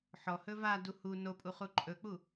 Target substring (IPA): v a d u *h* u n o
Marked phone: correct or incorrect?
correct